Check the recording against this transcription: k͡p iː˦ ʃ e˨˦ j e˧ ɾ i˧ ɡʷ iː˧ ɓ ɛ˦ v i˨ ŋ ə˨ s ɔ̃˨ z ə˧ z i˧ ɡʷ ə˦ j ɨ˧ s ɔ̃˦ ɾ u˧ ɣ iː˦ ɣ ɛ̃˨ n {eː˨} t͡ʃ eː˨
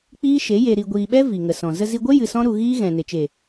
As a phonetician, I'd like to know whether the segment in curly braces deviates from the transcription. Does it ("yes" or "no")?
yes